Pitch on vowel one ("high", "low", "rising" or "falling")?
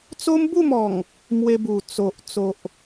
high